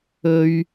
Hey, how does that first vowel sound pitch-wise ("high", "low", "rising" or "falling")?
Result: high